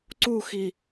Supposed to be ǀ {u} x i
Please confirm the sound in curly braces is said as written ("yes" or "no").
yes